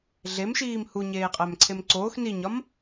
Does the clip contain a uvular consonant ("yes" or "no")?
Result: yes